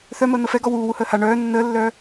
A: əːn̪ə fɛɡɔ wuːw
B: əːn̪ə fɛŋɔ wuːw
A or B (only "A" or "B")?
A